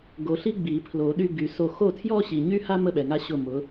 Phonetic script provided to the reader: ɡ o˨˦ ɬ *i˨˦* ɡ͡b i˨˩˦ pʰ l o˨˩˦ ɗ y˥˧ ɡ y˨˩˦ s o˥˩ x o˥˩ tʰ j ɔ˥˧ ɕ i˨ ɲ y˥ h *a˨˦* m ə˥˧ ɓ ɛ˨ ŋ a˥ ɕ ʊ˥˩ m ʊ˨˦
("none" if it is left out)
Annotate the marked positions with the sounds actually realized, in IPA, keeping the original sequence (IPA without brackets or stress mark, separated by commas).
i˥, a˥